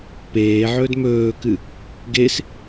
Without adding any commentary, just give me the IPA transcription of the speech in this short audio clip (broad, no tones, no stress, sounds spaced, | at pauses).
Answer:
p eː ʕ ɵː d m ɵː k ɨ | ɡ e s